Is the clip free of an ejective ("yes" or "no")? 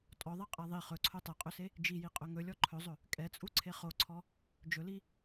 no